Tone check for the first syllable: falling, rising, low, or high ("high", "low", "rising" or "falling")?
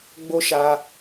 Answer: high